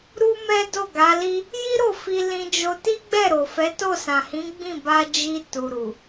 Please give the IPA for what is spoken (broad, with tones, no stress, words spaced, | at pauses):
ɾu˦mɛ˦ do˦˨ɡa˨˦li˦ | ji˦ɾo˦˨ fi˧lĩ˧d͡ʒo˧ ti˦ɡ͡bɛ˦˨ɾo˨fɛ˨˦ to˦˨sã˨hĩ˨˦ɡ͡bĩ˦˨ ba˧d͡ʒi˧ tu˨ɾu˨